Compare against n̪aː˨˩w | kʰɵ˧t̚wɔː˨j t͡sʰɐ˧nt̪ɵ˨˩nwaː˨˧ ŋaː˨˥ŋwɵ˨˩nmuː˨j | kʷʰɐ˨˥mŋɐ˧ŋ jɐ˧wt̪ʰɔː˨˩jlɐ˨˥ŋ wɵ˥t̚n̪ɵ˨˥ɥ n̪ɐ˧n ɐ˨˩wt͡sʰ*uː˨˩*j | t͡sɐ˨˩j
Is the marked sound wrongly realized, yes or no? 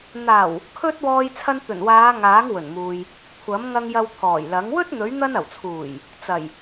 no